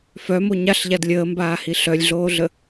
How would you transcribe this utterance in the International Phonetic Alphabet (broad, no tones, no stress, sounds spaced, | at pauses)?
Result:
f œ m o ɲ a ɬ ʎ a d lʲ əː m b aː h i ɬ œ lʲ ɮ oː ɮ ə